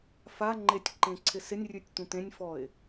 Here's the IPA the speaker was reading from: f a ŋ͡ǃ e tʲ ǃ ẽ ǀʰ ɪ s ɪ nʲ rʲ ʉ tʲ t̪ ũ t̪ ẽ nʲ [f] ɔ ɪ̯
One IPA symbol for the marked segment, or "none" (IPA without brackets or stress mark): f